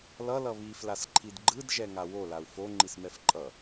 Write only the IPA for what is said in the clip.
l ʌ l ʌ β i f l a s ǃʰ i d ɡ͡ǃ ɯ d ʒ ɛ ŋ a w o l a u̯ f o ŋ͡ǃ i s m ɛ f ǃʼ ʌ

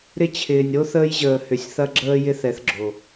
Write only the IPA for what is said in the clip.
ɾ ɪ˧ t͡ɕʰ ɪː˨ nʲ ɾ o˦ θ əː˧ j ʑ əː˨ h ʏ˨ sʲ θ ɐ˧ ɡ͡ǁ əː˧ j ɪ˦ θ ɛ˨˦ θ ɡ͡ǁ o˨

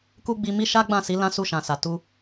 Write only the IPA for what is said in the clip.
k u˦ ɡ͡b i˧ m i˦ ʃ a˦ ɡ͡b ã˦˨ s i˨˦ l ã˦ s u˦˨ ʃ ã˨ s a˨ t u˧

